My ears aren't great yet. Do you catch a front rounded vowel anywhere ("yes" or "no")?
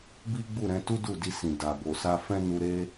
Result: no